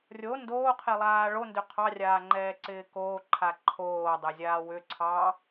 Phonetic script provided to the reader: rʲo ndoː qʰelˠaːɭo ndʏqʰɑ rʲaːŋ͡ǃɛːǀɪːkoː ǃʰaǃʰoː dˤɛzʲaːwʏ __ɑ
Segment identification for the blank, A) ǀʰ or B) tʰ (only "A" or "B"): A